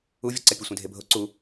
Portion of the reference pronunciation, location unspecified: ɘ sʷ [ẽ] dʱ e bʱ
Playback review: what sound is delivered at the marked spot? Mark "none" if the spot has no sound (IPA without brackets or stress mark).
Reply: ẽ